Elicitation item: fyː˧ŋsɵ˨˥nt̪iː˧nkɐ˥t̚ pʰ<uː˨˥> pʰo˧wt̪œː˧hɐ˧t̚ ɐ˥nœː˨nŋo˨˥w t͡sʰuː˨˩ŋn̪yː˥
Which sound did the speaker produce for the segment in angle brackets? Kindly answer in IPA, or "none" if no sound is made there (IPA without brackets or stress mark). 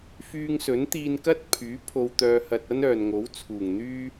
yː˨˥